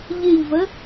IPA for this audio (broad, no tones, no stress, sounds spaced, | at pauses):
ʎ ɪ ʎ v ə